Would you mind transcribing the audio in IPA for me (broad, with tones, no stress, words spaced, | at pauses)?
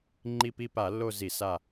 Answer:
ŋ͡ǃi˦˨pi˦˨pa˧˩˧lːo˦˨ zi˧˩˧sa˦˨